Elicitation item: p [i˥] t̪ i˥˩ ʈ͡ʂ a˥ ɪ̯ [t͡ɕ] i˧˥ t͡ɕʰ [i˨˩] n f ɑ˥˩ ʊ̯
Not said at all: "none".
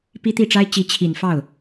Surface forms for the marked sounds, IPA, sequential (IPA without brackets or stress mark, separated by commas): i˥, t͡ɕ, i˨˩